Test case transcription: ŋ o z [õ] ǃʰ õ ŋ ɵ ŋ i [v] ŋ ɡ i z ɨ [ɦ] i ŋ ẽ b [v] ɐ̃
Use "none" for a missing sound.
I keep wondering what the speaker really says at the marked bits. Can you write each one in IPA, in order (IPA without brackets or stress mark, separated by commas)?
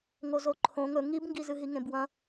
o, b, ɦ, w